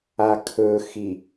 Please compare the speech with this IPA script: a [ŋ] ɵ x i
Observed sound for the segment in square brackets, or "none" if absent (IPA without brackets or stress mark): kʰ